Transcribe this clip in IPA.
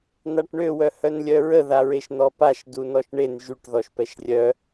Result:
n̪ a ʈ ɳ ø w œ h œ n lʲ œ ɹ ə ð a ɹ e ʃ n̪ ɔ p a ʃ d u n ɔ ʃ ɳ e n ʒ y ʈ ð ɔ ʃ p ɛ ʃ rʲ œ

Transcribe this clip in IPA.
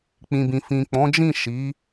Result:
k͡p ĩ˨ b ĩ˨ f ĩ˨ k͡p ɔ̃˨˦ d͡ʒ ĩ˦˨ ʃ i˨˦

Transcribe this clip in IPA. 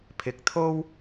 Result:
pʰ ɪ˧ k̚ t̪ʰ o˥ w

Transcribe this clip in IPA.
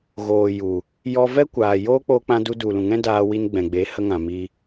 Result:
ɣ oː˨ j u˨ | j ɔ˧ v ɛ˦ kʷ aː˨ j oː˦ k͡p oː˧ k͡p ã˧ d u˧ d u˨ l ũ˨ ŋ ɛ̃˦ d aː˧ w i˧ n ɡ͡b ɛ̃˨ ɡ͡b e˨˦ h ə˧ ŋ ã˨ m i˧

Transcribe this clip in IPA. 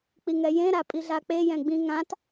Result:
k͡p i ŋ ɛ j ẽ ɾ a pʼ i ɮ a k͡p e j ɛ̃ ɡ͡b ĩ ŋ ã t

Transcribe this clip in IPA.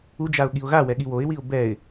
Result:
u d͡ʒ a ʊ̯ ɠ i ʊ̯ ɣ a w ɛ ɠ i w o ɪ̯ w i ʊ̯ b ɛ ɪ̯

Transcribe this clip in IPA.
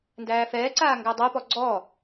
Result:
n d æː f ɛː ǀ aː ŋ ɡ æ dˤ ɛ p ɔ ɡ͡ǀ ɔ

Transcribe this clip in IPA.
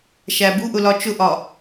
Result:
ʃ æ b u ʔ ʊ l ɒ t͡ʃ ʊ ʔ ɒ

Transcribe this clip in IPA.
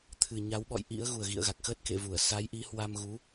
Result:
t̪ʰ ɨ˨˩ ɲ a˨˦ w ɓ ɔ̰˧˨ j ʔ ḭ˧˥ ə̯ ɣ u˨˩ ə̯ ɣ ḭ˧˨ ə̯ ɣ a˨˩ k̚ x əː˦˥ t̚ k ḛ˧˨ v u˧˩ ə̯ s a˨˦ j ʔ i˨˦ h w a˧ m ɣ u˨˦

